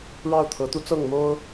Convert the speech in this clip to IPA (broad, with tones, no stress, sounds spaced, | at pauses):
ɻ ɑ˥˩ ʊ̯ t̪ʰ ɤ˧˥ t̪ u˥ t͡s ɤ˥˩ ŋ m o˥ ʊ̯